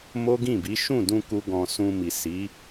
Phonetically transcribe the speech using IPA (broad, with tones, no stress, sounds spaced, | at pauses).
m o˦ ɡ ĩ˦˨ b i˨˦ ʃ ũ˦˨ d ũ˧ k u˦ ɡ ɔ̃˧ s ũ˧ m i˨ s i˨˦